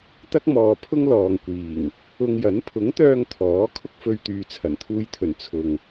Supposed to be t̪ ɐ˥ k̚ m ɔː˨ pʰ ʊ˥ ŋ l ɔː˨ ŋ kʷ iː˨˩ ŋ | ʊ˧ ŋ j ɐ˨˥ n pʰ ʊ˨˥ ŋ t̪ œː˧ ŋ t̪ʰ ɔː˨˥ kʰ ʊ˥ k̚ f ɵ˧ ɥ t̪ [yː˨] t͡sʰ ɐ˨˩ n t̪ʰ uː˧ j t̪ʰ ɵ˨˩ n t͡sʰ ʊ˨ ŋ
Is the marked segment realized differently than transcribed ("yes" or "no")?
no